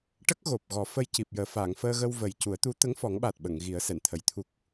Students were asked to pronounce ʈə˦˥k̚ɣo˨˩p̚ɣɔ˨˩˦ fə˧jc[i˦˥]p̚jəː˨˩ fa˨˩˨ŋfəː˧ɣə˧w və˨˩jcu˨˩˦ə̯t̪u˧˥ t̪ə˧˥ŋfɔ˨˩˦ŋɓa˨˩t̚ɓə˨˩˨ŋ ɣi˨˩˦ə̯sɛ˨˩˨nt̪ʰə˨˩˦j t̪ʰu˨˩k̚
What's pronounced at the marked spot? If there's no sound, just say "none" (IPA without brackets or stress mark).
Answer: i˨˩